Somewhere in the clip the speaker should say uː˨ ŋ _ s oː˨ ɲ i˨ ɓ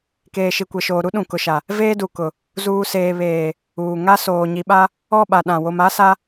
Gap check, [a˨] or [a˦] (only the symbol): a˦